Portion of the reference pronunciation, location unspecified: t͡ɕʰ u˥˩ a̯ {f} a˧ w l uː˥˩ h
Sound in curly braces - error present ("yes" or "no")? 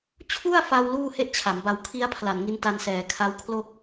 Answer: no